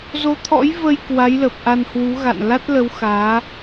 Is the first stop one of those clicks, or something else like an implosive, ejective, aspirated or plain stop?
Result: aspirated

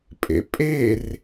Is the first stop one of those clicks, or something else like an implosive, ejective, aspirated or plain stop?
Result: ejective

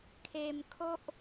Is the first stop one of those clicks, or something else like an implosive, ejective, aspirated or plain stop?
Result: aspirated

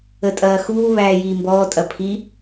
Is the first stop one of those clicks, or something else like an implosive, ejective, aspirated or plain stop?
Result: ejective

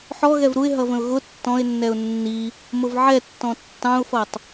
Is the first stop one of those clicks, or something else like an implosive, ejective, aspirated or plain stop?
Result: plain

